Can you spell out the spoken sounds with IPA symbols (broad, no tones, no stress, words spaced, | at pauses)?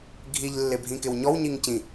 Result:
ɡʱiʎ lːɪbʱĩkɪwɲɔw ɲiŋcĩ